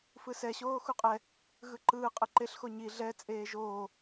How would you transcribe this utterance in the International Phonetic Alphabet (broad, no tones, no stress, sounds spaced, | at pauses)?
f ɯ s ɛ ɕ oː x u qʼ ɛ | ɣ ɯ ǃ ɯː qʼ ɯ ǃ e ɬ x o ɲ i ɮ ɛ t͡sʼ eː ʒ oː